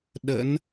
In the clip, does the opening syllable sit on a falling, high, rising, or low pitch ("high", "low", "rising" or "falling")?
rising